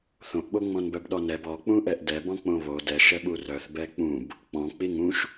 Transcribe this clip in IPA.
θ õ ʔ ɓ o ŋ͡m ɔ̃ n b œ b ɗ ɔ n ɛ b ɔ k͡p ũ ʔ ɛ ʔ d ɛ b ɔ̃ k͡p õ β o d ɛ ʃ ɛ ɓ u r œ θ b ɛ k͡p ũ b | k͡p ɔ̃ k͡p i ŋ ũ ʃ

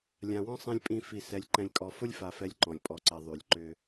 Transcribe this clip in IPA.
lʲ ã˨ w ɔ̃˦ sˤ ĩ˨ lʲ pʼ ĩ˨ f i˨ s ɛ˨ lʲ ǃ ɛ̃˨ lʲ kʼ ɔ˨ f ʊ˦ lʲ f a˨ f ɛ˨ lʲ ǃ ɔ̃˨ lʲ pʼ ɔ˨ ǀ ɛ˨ ðˤ y˨ lʲ ǃ ʏ˦

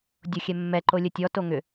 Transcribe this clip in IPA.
dʲ o xʲ ɛ mː ɛ ǃ o lʲ ə tʲ ɔ t o ŋ ʏ

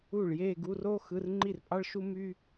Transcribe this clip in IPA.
u˥˩ ɭ j e˥˧ ɡ u˧˥˧ r o˥ x ɯ˧˥˧ r ŋ͡ǃ i˥˩ r pʼ ɑ˥ ɭ ʃ u˥ m y˥

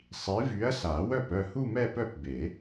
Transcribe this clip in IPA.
sˤ i˨˥ v y˨˥ ɐ̯ s a˨˩˦ w œ˥˩ p œ˥˩ h u˥˧ m ɛ˥˧ p œ˥˩ p b e˨˩˦

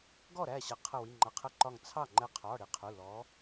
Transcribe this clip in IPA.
ɡ ɔ˥˩ ɾ æ˥˩ ɕ ʌ˨˦ qʰ ə˧˩ w i˩˧˩ ŋ͡ǃ ʌ˩˧˩ qʰ ə˧˩ ǃ ɒ˧˩ ŋ t͡sʰ ɑ˥˩ ŋ͡ǃ ɛ˧˩ qʰ ɒ˩˧˩ ɽ i˨˦ qʰ u˩˧˩ l ɔ˨˦

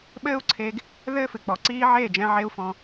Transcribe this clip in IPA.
ɓ ɘː˥ u̯ ǀʰ e˧ ɡ | ð ɘː˥ f ɨ˩ k͡p ɔ˩ ǀ iː˥ ʕ eː˥˩ d͡ʒ ɛ̃˧ ʕ e˥ u̯ f ɔ̃˧

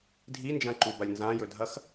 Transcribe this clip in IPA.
dʱ i n d͡ʒ ɐ̃ ǃ u b ɐ lʲ n z ã j ɵ dʱ ɐ x

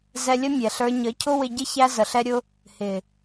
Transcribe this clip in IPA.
z ɛ˧ lʲ ə˦ mʲ ɛ˨ ɬ ə˞˧ ɲ ə˨˦ cʰ ʊ˦ w ɪ˧ ɟ ɪ˦ ç æ˧ z ə˨ ɬ ɛ˦ ɾʲ ʊ˦ | h ɪ˨

